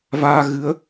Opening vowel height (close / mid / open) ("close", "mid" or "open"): open